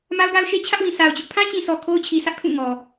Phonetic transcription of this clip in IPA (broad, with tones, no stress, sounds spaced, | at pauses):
m a˦ ʊ̯ ɡ a˦ ʊ̯ ʃ e˦ t͡ɕʰ ä˦ ʔ w ĩ˨ s a˨ ʊ̯ t͡ɕ ʊ˦ ʔ pʰ ã˦ t͡ɕ ĩ˨ sʰ ɔ˨ kʰ o˦ ʊ̯ t͡ɕʰ i˨ sʰ ä˦ ʔ kʰ ũ˦˨ ŋ ɔ˨